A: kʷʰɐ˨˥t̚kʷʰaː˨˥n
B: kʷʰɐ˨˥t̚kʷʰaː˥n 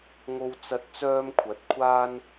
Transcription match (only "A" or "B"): B